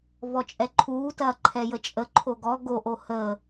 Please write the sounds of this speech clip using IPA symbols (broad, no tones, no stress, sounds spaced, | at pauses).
v ɔ t͡ʃʼ ɛ ǃʰ uː t ɐː ǃʰ ɛ j ə t͡ʃʼ ə ǃʰ o ɡ ɔ ɡ o ʔ o h əː